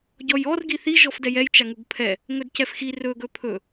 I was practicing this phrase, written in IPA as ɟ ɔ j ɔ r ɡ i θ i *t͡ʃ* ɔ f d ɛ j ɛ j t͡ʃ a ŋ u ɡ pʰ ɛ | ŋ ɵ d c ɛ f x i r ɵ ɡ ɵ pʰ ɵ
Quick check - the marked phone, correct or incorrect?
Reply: incorrect